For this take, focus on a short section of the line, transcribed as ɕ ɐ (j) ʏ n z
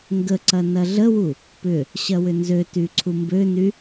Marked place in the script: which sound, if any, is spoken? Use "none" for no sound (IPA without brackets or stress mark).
w